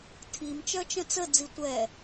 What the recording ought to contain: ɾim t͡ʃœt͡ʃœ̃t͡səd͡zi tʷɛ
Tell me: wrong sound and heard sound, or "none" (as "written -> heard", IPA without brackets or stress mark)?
ɾ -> tʰ